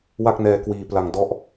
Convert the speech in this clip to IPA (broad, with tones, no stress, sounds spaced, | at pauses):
w a˥˩ k̚ n ɛː˧ k w iː˧ p l a˧ ŋ d ɔ˥˩ ʔ